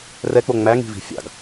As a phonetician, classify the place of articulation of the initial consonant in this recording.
alveolar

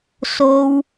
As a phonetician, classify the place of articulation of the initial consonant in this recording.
alveolar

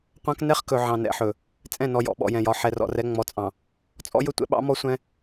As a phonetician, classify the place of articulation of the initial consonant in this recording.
uvular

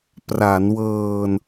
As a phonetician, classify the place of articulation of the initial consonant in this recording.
labial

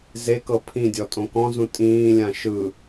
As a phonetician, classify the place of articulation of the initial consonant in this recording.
alveolar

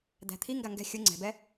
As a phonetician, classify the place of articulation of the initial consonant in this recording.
alveolar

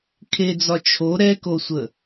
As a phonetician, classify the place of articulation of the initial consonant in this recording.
velar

